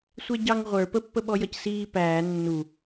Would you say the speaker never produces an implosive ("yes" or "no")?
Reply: no